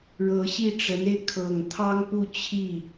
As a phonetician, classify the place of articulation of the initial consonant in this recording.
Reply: retroflex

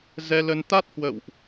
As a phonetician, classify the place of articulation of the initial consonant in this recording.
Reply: alveolar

